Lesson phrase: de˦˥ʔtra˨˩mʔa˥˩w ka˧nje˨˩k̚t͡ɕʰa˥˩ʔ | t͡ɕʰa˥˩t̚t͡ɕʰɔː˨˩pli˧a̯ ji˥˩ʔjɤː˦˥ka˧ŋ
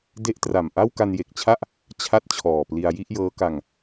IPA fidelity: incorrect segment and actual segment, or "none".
none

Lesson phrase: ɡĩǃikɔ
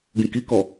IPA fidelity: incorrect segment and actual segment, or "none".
ǃ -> k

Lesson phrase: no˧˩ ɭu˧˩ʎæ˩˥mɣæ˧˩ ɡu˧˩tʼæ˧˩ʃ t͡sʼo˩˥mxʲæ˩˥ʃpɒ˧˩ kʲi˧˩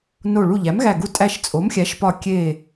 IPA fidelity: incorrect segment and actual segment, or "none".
i˧˩ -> e˧˩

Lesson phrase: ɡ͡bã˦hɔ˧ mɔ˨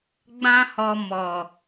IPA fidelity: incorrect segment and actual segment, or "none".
none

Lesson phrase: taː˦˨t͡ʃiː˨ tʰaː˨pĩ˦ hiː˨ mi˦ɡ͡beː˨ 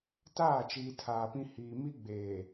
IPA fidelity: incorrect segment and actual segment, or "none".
none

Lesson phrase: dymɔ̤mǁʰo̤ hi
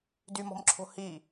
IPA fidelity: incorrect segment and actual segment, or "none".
none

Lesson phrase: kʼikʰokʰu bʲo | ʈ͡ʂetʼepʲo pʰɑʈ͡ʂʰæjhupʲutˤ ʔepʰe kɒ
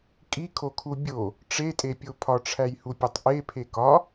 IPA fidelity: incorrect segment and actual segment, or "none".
ɑ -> ɒ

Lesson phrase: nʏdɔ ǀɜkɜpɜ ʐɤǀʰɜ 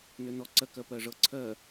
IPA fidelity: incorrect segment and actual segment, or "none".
d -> n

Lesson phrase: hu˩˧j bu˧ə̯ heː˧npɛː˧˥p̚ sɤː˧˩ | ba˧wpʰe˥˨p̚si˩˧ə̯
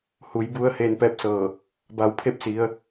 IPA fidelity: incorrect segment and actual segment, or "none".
none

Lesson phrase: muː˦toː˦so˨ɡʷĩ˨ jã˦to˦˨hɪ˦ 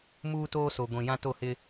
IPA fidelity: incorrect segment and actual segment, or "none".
none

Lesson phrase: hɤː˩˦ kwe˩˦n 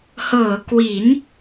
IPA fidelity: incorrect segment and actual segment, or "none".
e˩˦ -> i˩˦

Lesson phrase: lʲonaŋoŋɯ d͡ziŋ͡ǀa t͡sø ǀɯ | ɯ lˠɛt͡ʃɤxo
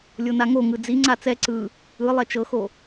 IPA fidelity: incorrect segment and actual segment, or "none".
ø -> ɛ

